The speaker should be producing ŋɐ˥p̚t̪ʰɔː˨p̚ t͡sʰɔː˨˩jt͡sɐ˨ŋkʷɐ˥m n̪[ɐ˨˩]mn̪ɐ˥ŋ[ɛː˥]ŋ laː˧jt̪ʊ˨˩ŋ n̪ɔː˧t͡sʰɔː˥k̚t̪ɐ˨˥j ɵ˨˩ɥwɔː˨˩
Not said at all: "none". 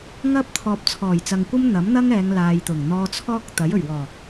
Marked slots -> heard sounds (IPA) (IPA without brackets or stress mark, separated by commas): ɐ˨˥, ɛː˨˧